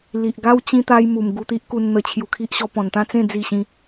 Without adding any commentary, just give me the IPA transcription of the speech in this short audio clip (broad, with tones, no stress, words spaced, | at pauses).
li˨ʔɡa˦w t͡ɕĩ˦t̪a˦jmu˨˩m ɡu˧t̪i˦ʔ ku˧n n̪ə˧t͡ɕʰju˧kʰi˦ʔ ɕɔ˧pɔ̃˨˩nt̪ã˥˧t͡sẽ˥˧ d͡zi˥˧ɕĩ˦